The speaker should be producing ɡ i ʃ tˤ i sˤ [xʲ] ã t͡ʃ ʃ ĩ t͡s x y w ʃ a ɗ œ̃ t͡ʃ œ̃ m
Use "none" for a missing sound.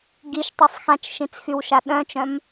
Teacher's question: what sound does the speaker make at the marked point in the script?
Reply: x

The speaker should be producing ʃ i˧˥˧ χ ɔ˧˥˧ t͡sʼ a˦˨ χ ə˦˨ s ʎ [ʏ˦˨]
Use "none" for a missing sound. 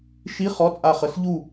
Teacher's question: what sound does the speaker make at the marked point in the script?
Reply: u˦˨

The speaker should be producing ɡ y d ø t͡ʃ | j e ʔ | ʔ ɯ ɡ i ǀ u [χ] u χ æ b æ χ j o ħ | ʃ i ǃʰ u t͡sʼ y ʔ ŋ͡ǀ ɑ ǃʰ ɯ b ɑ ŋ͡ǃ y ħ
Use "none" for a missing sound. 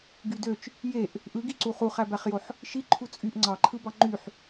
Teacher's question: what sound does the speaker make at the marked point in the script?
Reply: χ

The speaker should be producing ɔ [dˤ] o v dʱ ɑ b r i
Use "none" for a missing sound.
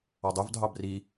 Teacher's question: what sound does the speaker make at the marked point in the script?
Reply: dˤ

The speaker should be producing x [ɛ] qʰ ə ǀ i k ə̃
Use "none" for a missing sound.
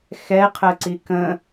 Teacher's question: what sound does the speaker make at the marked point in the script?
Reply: ɛ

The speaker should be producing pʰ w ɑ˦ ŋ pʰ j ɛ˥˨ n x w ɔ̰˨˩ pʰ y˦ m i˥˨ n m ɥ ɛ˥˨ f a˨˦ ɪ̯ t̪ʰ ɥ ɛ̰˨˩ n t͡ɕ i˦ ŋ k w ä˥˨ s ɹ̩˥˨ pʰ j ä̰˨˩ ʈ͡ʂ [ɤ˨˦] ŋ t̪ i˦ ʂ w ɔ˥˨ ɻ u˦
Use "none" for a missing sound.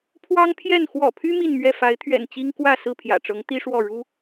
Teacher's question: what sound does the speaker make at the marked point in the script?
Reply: ɤ˨˦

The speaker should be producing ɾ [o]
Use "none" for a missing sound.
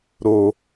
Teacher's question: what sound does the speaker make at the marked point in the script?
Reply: o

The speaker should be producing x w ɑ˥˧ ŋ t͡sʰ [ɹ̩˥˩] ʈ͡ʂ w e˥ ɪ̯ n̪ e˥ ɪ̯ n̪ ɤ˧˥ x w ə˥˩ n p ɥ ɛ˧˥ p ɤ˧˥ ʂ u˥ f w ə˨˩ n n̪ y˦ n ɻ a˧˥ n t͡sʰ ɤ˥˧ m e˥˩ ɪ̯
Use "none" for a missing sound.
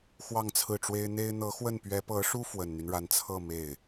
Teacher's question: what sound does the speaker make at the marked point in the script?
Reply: ɹ̩˥˩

